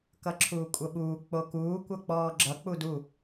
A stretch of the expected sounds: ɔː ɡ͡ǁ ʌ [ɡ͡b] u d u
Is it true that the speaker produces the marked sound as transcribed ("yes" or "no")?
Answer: no